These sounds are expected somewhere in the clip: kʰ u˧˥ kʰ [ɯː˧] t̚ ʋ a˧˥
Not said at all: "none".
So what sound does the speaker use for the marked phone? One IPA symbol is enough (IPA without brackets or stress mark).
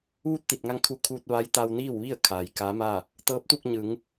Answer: uː˧